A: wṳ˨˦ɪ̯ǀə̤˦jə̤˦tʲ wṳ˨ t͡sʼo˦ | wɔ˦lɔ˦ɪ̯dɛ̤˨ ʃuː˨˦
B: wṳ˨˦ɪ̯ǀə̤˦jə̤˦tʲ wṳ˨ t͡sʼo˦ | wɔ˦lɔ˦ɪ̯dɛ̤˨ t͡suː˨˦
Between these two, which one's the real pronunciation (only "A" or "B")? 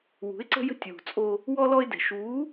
A